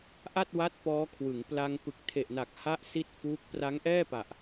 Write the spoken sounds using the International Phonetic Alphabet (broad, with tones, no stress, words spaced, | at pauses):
ʔa˥˩t̚wa˦˥t̚ pɔː˦˥kʰwɯ˩˦ŋ pla˧ŋ pɯ˨˩k̚tʰe˨˩ʔna˨˩k̚ ha˥˩ʔsi˥˩t̚ fuː˦˥k̚ pra˦˥ŋʔɛː˥˩pa˨˩ʔ